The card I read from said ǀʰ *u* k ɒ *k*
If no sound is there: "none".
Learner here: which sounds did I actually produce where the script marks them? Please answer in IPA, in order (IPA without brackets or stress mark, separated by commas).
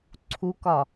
u, none